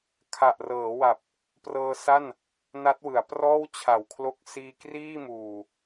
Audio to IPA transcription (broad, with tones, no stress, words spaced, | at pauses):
kʰa˨˩ʔrɤː˩˦wa˨˩p̚ | prɤː˧sa˥˩n | na˦˥t̚wɯ˩˦a̯ prɔː˥˩wt͡ɕʰa˨˩wkʰlo˦˥k̚ siː˧kriː˥˩muː˨˩